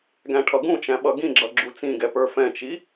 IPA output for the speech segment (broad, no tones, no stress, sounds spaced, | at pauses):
ɡ æ̃ ʈʰ ʌ ɡ ũ t͡ʃ æ̃ ɓ ʌ ɡ ĩ ɡ͡ǁ ʌ ɡ͡ǁ u t͡s ĩ ɡ ɛ p ə˞ f ɛ̃ t͡ʃ i